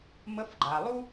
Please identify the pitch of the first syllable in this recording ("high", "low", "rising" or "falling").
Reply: rising